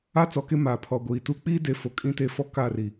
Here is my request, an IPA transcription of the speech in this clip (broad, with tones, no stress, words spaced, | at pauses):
a˦t͡sɔ˨ke˦ maː˨pʰɔ˨ ɡʷiː˨tuː˦ k͡piː˦de˨ fo˨kʼĩ˦te˦˨ fɔ˦ kaː˦˨ri˨